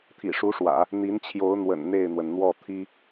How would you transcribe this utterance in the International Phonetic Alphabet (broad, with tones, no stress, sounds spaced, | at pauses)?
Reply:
t̪ʰ ḭ˨˩ ʂ u˧˥ ʂ w ä̰˨˩˦ | n̪ i˧˥ n t͡ɕʰ j o˧˥ ʊ̯ n̪ w ə̰˨˩ n n̪ e˥˩ ɪ̯ n̪ w ə˩ n n̪ w ɔ˥˩ t̪ʰ i˥